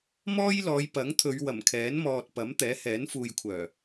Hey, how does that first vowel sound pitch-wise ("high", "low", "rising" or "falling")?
high